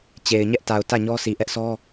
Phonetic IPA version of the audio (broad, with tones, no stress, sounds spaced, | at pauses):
t͡ɕ e˨ ɪ̯ ɲ ɛ˦ ʔ t a˨ ʊ̯ t ä˦˨ ɲ ɔ˦ sʰ i˨ ʔ ɛ˦ ʔ sʰ ɔ˦